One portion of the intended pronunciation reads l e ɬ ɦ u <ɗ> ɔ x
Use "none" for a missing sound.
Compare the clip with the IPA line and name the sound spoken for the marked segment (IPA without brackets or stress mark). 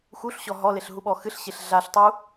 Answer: ɓ